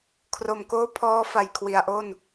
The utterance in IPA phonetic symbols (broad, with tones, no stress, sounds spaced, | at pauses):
kʰ r o˨˩ m k oː˦˥ pʰ ɔː˦˥ f a˨˩ j kʰ w i˩˦ a̯ ʔ o˥˩ n